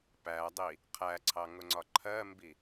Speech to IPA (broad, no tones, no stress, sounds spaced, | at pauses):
p æ dˤ i | qʰ æ ǀʰ ɑ ŋ ʊ ŋ͡ǀ ɒ ǃʰ ɜ m b i